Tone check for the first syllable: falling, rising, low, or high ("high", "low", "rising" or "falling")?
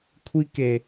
high